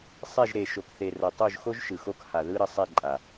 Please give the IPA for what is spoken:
sˤ ɛ˦˨ ʒ ɾ e˨ ʃ o˨ k θ e˨ r ʌ˨ tˤ o˦˨ ʒ x o˦ ʒ ʃ ɯ˨ x o˦ k h a˨ ð ɯ˦ ɾ ʌ˨ sˤ ɛ˦˨ ǃʼ a˨

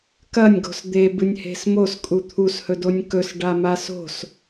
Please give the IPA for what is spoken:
k ɐ nʲ ɡ o̤ s d̪ e b ɨ nʲ h e̤ s m o s kʼ u t̪ʰ u s h ɵ d o nʲ k ɵ s ɖ a m a s o̤ s

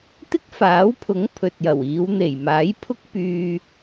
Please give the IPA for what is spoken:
t̪ ɪ˥ k̚ f aː˨˥ w pʰ ʊ˨˥ ŋ pʰ ɵ˨ t̚ j ɐ˨˩ w iː˨˧ w n̪ e˨˩ j m aː˨˥ j pʰ ʊ˥ k̚ p yː˨

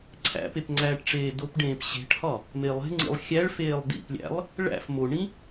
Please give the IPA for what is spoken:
ǀʰ æ̰ p e p ŋ͡ǀ æː ʈ ʈ͡ʂ eː d o p ɖ ẽː p ɕ e̤ ʈ h ɒ | m e lˠ e̤ ŋ͡ǀ ḭ lˠ xʲ æ ɭ f eː lˠ d ḭ p lʲ æ̰ lˠ | ɭ æ̰ f m o ɳ ĩ

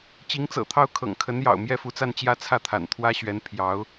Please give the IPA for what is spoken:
t͡ɕ i˧˥ ŋ t͡s ɤ̰˨˩ t̪ʰ ɑ˥˩ ʊ̯ kʰ ɤ̰˨˩ ŋ kʰ ə˧˥ n j ɑ̰˨˩ ʊ̯ m j ɛ˥˩ f u˧˥ t͡s a˥˧ n t͡ɕ j ä˥˧ t͡sʰ ä˥˩ t̪ʰ a̰˨˩ n t̪ʰ w ä˥ ɕ ɥ ɛ˧˥ n pʰ j ɑ˧˥ ʊ̯

